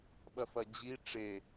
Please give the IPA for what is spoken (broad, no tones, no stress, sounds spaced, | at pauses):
ɓ ɐ f ɐ d͡ʑ i ʈ͡ʂ e